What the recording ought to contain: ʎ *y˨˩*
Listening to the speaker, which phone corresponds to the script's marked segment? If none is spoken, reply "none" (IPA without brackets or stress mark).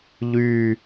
y˨˩